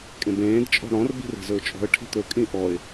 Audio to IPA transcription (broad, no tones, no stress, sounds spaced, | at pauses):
kʼ ẽ b ẽː d t͡ʃʼ ɔ̤ ɽ ɔ̃ r b i̤ r e̤ z ɵ ʊ̯ t͡ʃʼ ɔ̤ ə̯ ʈʰ i̤ t̪ ɵ kʼ ĩ ʔ ɔ ɪ̯